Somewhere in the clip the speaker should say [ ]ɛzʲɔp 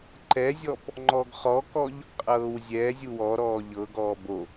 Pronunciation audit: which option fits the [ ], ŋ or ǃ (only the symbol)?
ǃ